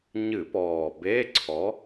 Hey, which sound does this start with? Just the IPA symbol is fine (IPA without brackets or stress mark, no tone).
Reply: ɲ